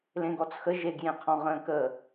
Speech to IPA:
lẽɡɔt͡sxə ʒeɡjẽqʰɔ̃ ʁə̃ːkə

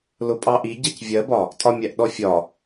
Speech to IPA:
lʊpʼɑʔi ɟʌcvʲɜbɒ | tʼɒmʲæʔɗɔfʲɒ

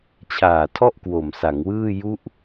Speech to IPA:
t͡ɕʰaː˨˩tʰɔ˥˩ʔ kwo˨˩msa˩˦ŋwɯː˥˩ ju˦˥ʔ

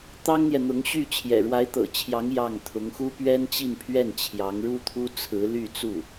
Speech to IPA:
t̪ɑ˥ŋn̪jɛ˨n̪ʊ˧˥ŋɕy˥˩ t͡ɕʰjɛ̰˨˩ɻwa˧˥ɪ̯t̪ɤ̰˨˩t͡ɕʰjɑ˧˥ŋ jɑ˥˩ŋ t̪ʰʊ˧˥ŋxu˥ pɥɛ˥nt͡ɕi˥˧npʰɥɛ˥˩n t͡ɕʰjɑ˧˥ŋɻu˥t̪ʰu˥ t͡sʰɹ̩˧˥ly˥˧t͡su˥˩

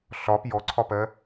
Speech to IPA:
ɬɒ pjɔǀʰɒpɜ

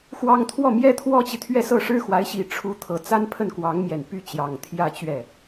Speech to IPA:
xwɑ˥ŋ t̪ʰwɔ˥˩mjɛ˥ t̪ʰwɔ˥t͡ɕi˨t̪ʰɥɛ˥˧ sɤ˥˩ʂɻ̩˥xwa˧˥ɪ̯ɕi˨˩ ʈ͡ʂʰu˧˥t̪ʰɤ˨˩ t͡sa˥npʰə˥˩nkwɑ˧˥ŋmjɛ˨˩n py˥˩ t͡ɕjɑ˨˩ŋt̪ʰjä˥˧ t͡ɕɥɛ˥˩

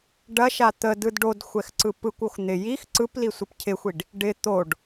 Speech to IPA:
ɖɐʃa t̪ədɯd ɖodxʷɛxǀɯ pɯkʷox n̪ɪ jix ǀɯplisʷɪp cʰɪxʷiɖ | ɖɪ t̪oɖ

